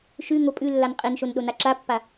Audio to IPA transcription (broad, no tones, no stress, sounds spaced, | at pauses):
ʃ ʉ ŋ o pʼ ʉ lː a n qʼ e n ʃ o n ɗ o n a ǁ a pː a